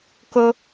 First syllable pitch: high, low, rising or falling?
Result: high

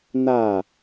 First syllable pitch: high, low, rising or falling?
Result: falling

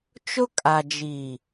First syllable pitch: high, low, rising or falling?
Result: high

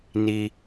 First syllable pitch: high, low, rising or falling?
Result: low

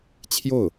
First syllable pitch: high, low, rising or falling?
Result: falling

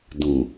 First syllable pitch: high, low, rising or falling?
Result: low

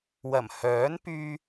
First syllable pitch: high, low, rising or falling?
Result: low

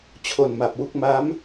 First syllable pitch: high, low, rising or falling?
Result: low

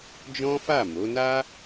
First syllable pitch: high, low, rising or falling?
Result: high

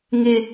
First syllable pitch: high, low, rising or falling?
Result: low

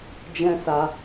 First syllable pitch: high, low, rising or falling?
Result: high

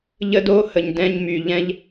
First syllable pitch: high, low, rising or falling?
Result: high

